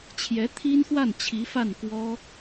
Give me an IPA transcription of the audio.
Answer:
t͡ɕʰ j ɛ˧˥ t̪ʰ i˥ n x w a˥˩ n t͡ɕʰ i˧˥ f a˥˩ n k w ɔ˥

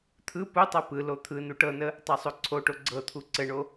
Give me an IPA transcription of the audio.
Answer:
t̪ʰ ɯ p u tˤ ɤ p ɯ l o t̪ʰ ɯ n u ʈ ɤ n ə | tˤ ɤ sˤ o ǀʰ o ʈ o ɡ͡ǀ ɤ t̪ʰ u ǀ ɘ ɳ o

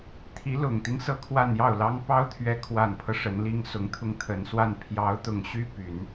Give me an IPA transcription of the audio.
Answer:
t̪ʰ i˧˥ l ʊ˨˩ ŋ t̪ i˦ ŋ s ɤ˥˧ kʰ w a˥˧ n j ɑ˥˩ ʊ̯ l ɑ˥ ŋ p ɑ˥ ʊ̯ t̪ʰ ɥ ɛ˧˥ kʰ w a˨˩ n pʰ ɤ˦ ʂ ə˧˥ n l i˥ ŋ s ʊ˧˥ ŋ t̪ʰ ʊ˥˩ ŋ t̪ʰ ə˨˩ n s w a˥˩ n pʰ j ɑ˧˥ ʊ̯ t̪ ʊ˨˩ ŋ ɕ y˥ p y˨˩˦ n

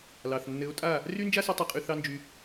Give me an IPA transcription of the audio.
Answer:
l ɑ˨ θ nː ɘ˨˦ o̯ tʼ a˦˨ | r y˦ n d͡ʒ a˦ s u˧ tˤ œ˦ qʼ y˦ θ ɑ˦ n d͡ʒ y˧

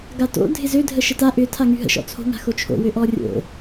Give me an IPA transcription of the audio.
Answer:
ɡ a t o̰ dʱ ɪ z ø dʱ ə ʃ ə t a ʔ ʏ tʰ a ŋ y ɦ ə̰ ʃ ɔ̰ t͡sʰ o̤ ŋ a̤ x o t͡ʃʰ o̰ w ø ʔ ɔ rʲ o̰

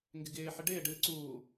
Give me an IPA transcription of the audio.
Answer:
ŋ ɡ ɪ ɡ ɪː ħ ɪ ɖ ɪː ɖ ɨː ǀ uː

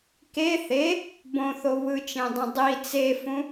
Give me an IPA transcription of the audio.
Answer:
k e θ e | b õ θ o β ɯ t͡ʃ ẽ dˤ ẽ dˤ i t͡s e f ũ

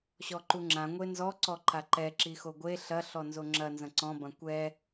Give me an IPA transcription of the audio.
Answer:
ɕ ɔ ǃ u ŋ͡ǁ ã ŋʷ e n z ɔ ǀ ɔ ǃ a ǃ ɛ ǁ i x o ɡʷ e ɬ ɐ ɬ ɔ n z o ŋ͡ǁ ɐ n z ɐ̃ ǀ ɔ̃ b ɐ̃ kʷ ɛ

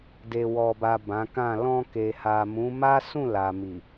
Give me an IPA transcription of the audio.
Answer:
d e˨ w ɔ˨ b a˨ b ã˨˦ k ã˦˨ l ɔ̃˧ k e˨ h a˨ m ũ˨˦ m a˦ s ũ˦˨ l a˨ m i˨

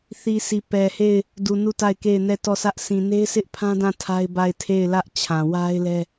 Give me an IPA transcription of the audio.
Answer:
θ i˨ sʰ i˨ p ɛ˨ h e˦˨ ɪ̯ | d u˨ n u˦˨ t a˦˨ ɪ̯ k e˦˨ ɪ̯ n ɛ˦˨ t ɔ˦˨ sʰ ä˦ ʔ sʰ ĩ˨ n e˦ ɪ̯ sʰ ɪ˦ ʔ pʰ ã˦ d ã˦˨ tʰ a˦ ɪ̯ b a˦˨ ɪ̯ tʰ e˦˨ ɪ̯ l ä˦ ʔ t͡ɕʰ ã˨ w a˦ ɪ̯ l ɛ˦

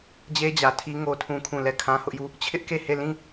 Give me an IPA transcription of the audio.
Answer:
d͡ʑ e˦ d͡ʑ ä˨ tʰ i˦ ŋ o˦ tʰ ũ˦ kʰ ũ˦˨ l ɛ˦˨ kʰ ã˦ h ʊ˦ ʔ j u˦˨ | t͡ɕʰ ɪ˦ ʔ k e˦˨ h e˦˨ l ĩ˦˨

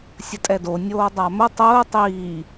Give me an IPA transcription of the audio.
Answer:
sʲ ə tʼ ɛ d o nʲ oː dˤ a m ʊ tˤ ʊː tˤ iː

